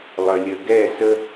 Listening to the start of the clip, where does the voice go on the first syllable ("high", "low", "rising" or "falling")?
low